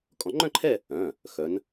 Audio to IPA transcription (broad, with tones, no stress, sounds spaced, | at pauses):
kʼ ɔ̃˨˩˦ ŋ͡ǃ œ̃˥˧ ǃʰ ɛ˥˧ | œ̃˩˧˩ | x œ˨˦ n